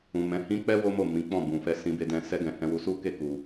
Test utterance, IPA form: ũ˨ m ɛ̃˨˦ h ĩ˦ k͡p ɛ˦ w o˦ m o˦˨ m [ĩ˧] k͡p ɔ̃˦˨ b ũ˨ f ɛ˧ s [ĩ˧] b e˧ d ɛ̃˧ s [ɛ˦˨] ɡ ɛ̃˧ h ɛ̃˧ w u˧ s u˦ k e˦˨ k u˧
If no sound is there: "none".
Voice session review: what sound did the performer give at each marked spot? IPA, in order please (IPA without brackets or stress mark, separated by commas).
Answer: ĩ˨˦, ĩ˧, ɛ˦